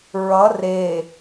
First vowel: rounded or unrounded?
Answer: unrounded